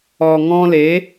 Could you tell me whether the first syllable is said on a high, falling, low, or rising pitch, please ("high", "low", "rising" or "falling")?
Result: low